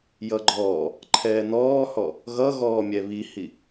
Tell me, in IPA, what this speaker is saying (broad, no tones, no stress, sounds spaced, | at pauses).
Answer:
j ʌ ɡ͡ǃ ɔː | ǃʰ ɛː n ɔː h ɔ | ɣ ʌ ɣ ɔː mʲ ɛ β i h i